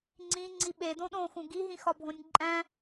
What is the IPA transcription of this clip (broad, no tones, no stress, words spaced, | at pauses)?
ŋ͡ǀĩ ŋ͡ǀiɓe dõɗõxũ ɡiɦĩxɒbʱõnʲ ǃʼæ̃